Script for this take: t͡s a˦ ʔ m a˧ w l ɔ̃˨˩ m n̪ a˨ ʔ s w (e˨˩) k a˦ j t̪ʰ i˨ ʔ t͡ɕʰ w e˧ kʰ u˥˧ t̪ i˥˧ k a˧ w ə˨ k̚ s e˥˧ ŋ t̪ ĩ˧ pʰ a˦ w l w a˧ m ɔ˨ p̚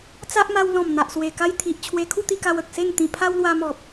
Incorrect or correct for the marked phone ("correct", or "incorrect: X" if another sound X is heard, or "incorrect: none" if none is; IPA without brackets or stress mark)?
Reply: correct